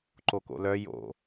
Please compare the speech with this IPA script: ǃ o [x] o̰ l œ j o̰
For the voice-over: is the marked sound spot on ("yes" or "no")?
no